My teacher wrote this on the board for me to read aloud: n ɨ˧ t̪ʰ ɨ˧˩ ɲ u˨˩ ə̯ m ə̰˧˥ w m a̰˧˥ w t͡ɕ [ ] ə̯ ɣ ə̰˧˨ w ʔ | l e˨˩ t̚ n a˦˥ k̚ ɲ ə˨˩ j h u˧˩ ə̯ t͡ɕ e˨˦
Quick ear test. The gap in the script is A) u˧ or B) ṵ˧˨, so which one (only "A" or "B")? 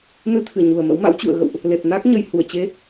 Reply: B